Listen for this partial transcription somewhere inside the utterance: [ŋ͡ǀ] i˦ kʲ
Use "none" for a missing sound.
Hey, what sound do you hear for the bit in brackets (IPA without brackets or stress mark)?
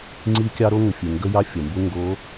ŋ͡ǀ